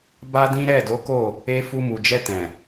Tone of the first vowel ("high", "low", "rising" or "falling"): high